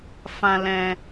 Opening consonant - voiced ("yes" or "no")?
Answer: no